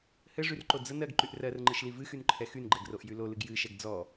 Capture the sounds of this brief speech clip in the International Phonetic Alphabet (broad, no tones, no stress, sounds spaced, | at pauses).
h ɘ ʐ y r ǃ o d͡z ə n ɜ ɡ ǃ y ʔ r ɜ r ŋ͡ǃ ɨ ʃ l i v ɨ x y n ǃʰ ɛ x y n ɡ͡ǃ ɛ ɡ r o ʔ j y l o l ɨ ɡ j ɨ ʃ ɛ ɡ d͡z ɔ